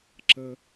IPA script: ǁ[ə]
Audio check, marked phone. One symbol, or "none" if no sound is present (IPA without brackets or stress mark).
ə